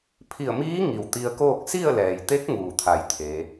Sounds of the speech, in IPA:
pʰ i˧˩ ə̯ m iː˧˥ ŋ i˩ w t̪ i˧ ə̯ k oː˥˨ k̚ s i˥˨ ə̯ l ɛː˩ j t̪ e˧˥ k̚ ŋ uː˧˩ t̪ʰ a˧˩ j t̪ʰ e˩˧

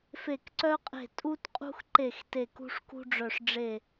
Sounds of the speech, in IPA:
f e˧˩ k ǀ œ˦ qʼ e̤˧˩ tʼ u˦ t qʼ ṳ˦ x ǃ e˧˩ x t e˧˩ k ṳ˦ ʂ k ṳ˦ ɖ͡ʐ œ˧˩ ʂ ɖ͡ʐ e˧˩

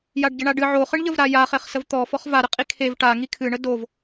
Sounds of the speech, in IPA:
j a ɖ ɟ ə ɳ a ɖ ɨ ʕ o χ ɨ ɳ ʎ ə v ɾ a j a χ e χ s ə v t̪ ɔ f ɔ χ v a ɾ ə qʼ i kʰ e v ʈ a ŋ i kʰ ɨ ɳ ə d o v

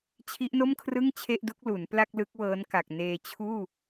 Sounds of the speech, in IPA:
t͡ɕʰ i˦˥ ʔ n o˥˩ m kʰ r ɯ˥˩ ŋ t͡ɕʰ e˥˩ ʔ d u˦˥ k̚ l u˩˦ n p l a˥˩ k̚ l ɯ˦˥ k̚ w ɤː˦˥ n k a˨˩ k̚ n eː˧ t͡ɕʰ uː˥˩

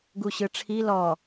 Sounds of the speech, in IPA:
ɡ u ɕ ɯ ʈ͡ʂʰ i l ɔ

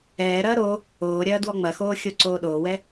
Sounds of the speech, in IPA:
ɛː ɾ ɐː ɾ o | oː ɾʲ ɐː d w ɔ ŋ͡m ɐ x oː xʲ o ǀ oː ɗ oː w ɛ

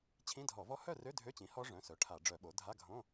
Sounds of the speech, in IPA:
t͡ɕʰ ĩ˧˥˧ dʱ ɔ˧˩˧ v ɔ˦˥ h œ˥˨ r ø˧˥˧ dʱ ø˧˥˧ t͡ɕ ĩ˩˥ h ɔ˦˥ ʐ œ̃˩˧˩ s œ˩˥ ʈʰ a˧˩˧ ɖ͡ʐ œ˧˩˧ ɓ o˩˥ dʱ a˧˥˧ ɡʱ õ˧˥˧

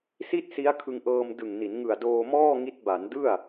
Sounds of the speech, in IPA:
s i˥˩ t̚ s i˦˥ a̯ kʰ ɯ˧ ŋ ʔ ɤː˧ m d ɯ˨˩ ŋ n i˩˦ n ŋ ɯ˨˩ a̯ d oː˧ m ɔː˥˩ ŋ i˦˥ t̚ b a˩˦ n d ɯ˥˩ a̯

